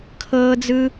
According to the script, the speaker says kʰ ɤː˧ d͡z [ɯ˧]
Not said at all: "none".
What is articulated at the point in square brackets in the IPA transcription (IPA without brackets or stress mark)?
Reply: ɯ˧